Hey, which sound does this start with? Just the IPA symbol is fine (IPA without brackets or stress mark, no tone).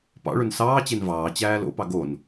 p